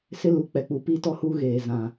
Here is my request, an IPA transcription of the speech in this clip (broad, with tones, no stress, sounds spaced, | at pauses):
s ɪ˦ l u˨˦ k͡p ɛ˨ k͡p u˨ p i˦ t ɔ˦ h u˦ ɣ eː˨ z ã˨